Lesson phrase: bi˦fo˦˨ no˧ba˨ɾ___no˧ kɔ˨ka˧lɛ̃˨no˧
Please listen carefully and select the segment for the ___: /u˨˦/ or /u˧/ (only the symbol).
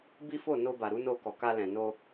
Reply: u˨˦